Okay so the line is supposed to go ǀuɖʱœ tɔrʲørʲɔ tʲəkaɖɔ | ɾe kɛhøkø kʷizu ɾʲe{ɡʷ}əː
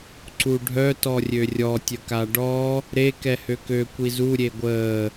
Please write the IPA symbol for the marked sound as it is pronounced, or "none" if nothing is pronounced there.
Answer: ɡʷ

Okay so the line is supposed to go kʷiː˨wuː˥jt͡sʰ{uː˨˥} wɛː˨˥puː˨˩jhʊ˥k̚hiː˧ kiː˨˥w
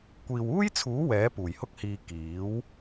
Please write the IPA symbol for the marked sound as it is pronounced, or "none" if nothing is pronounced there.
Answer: uː˨˥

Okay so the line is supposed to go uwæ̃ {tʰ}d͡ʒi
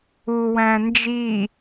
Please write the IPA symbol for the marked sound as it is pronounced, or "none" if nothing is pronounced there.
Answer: n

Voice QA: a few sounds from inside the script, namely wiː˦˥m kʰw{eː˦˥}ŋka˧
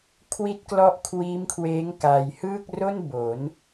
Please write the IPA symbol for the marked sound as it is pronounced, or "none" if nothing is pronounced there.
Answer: eː˦˥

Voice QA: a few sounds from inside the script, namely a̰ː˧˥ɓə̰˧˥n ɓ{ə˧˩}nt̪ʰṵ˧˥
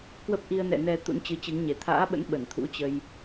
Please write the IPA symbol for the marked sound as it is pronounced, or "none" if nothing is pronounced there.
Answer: ə˧˩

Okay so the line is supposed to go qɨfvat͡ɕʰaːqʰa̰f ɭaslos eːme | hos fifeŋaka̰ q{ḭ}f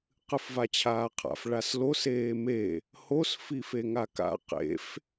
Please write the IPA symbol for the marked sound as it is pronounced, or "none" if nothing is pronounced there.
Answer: ḛ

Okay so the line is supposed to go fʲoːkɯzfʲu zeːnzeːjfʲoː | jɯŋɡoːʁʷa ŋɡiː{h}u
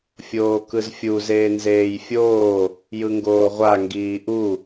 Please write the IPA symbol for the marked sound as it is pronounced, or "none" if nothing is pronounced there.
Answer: ʔ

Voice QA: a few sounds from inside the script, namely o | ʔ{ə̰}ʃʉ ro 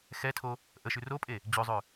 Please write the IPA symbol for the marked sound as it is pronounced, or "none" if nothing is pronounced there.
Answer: ə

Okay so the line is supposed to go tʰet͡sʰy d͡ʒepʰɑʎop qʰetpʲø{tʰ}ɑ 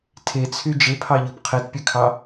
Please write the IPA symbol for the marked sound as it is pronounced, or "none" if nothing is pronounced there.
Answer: kʰ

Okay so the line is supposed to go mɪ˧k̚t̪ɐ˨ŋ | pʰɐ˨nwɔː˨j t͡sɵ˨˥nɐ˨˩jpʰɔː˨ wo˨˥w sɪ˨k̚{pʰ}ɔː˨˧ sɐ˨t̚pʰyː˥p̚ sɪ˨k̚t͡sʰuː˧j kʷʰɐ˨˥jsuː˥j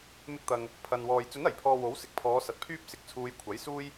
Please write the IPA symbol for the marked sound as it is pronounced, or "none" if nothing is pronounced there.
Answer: pʰ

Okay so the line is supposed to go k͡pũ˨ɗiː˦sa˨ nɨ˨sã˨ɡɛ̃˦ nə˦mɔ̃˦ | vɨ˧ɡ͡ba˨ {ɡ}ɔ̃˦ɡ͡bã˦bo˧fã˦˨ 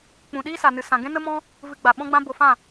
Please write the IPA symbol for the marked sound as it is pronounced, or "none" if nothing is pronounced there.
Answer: ɓ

